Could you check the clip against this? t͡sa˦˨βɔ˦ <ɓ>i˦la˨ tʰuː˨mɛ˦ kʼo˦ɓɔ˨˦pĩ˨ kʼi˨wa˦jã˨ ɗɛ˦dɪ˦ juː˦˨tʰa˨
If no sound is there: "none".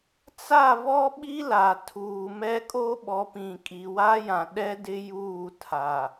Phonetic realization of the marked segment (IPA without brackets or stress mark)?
ɓ